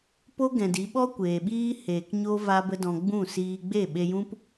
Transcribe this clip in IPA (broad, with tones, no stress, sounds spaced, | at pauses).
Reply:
p o˦ ɡ ɛ̃˨ d i˨˦ ɓ ɔ˦ kʷ eː˨ ɓ iː˦ h eː˨ k ɲ o˦ v a˦ b ə˦ d ɔ̃˧ ɡ͡b ũ˦˨ s iː˧ ɡ͡b e˦˨ ɓ e˧ j ũ˦ p